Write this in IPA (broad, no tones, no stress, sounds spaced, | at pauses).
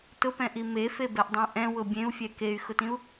t ʊ p ɛ̃ ʔ i m e f e b ɛ ʔ dˤ ẽ ʔ ɛ̃ w ʊ bʲ ẽ u̯ fʲ ɛ k e y̯ x ʊ t ĩ u̯